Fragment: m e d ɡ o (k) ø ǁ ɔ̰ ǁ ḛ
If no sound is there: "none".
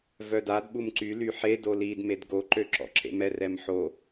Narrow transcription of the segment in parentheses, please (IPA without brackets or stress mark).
ǃ